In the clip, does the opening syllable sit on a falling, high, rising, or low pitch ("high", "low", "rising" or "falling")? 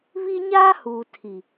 high